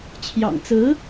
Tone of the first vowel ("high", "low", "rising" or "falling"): low